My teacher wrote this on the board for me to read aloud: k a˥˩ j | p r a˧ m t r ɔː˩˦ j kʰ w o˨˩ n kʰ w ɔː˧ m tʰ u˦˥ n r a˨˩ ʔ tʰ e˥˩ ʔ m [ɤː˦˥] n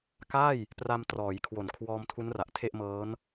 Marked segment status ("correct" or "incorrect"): correct